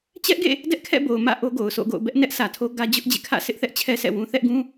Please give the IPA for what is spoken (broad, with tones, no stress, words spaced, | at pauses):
t͡ɕɛ˦ʔɡḛ˦˨ | dɛ˦ʔkʰɛ̰˦˨bo˨ʊ̯ mä̰˦˨ ʔo˦ɡo˨ʊ̯so̰˦˨ɡo̰˦˨ʊ̯ bɛ˦ʔnɛ˦ʔ sʰä˨tʰo˦ɡä˦ d͡ʑʊ˦ʔ d͡ʑḛ˦˨kʰä̰˦˨ sʰɪ˦ʔθɛ˦ʔt͡ɕʰɛ˦ sʰɛ̰˦˨wũ˦ θɛ˦ʔɡũ˦